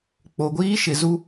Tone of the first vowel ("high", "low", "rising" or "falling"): low